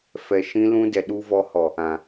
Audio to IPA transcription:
fɛ˨ ʃĩ˧lũ˧ dɛ˨ɗu˧vɔ˧hɔ˨ | ã˨

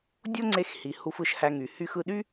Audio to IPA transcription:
dʲo˥ŋ͡ǀe˧xhi˩ hu˧fɯ˧ʃhæ˧ŋy˩ hy˧xɯ˧ɗy˥

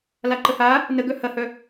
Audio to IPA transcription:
laǃəha | nəɡœ hɐhœ

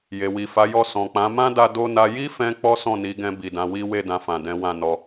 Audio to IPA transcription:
je˨wi˨fa˨˦jɔ˦˨ sɔ̃˨k͡pã˨˦ mã˦da˧do˧na˧ ji˦fɛ̃˧ k͡pɔ˦sɔ̃˦˨ni˨˦ɡɛ̃˧ bi˨dã˨˦wi˦ we˦˨dã˧fã˨ dɛ̃˨˦wã˦˨ nɔ˧

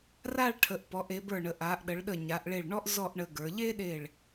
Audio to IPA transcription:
ra˥˧ɭʈʰə˩˧ʔpɔ˩˧ʔ e˩˧bə˞˧˩ɳə˩˧ ʔa˩˧ʔɗə˩˧ɭɗə˧˩ ɲa˩˧ʔɭe˧˩ɭɳɔ˥ʔ zɔ˥˧ʔɳə˧ɡə˞˩˧ ʎe˥ɗe˧˩ɭ

